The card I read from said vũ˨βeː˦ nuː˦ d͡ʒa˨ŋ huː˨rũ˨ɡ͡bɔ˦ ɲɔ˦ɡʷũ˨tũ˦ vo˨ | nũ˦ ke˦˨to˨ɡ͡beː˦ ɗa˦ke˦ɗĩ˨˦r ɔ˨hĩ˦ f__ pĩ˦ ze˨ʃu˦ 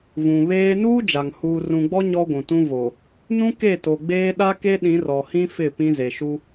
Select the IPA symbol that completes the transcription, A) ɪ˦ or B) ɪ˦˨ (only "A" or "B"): B